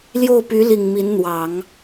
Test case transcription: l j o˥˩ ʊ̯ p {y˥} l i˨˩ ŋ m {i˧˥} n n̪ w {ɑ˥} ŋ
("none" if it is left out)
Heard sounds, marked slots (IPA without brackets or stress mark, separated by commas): y˧˥, i˧˥, ɑ˨˩˦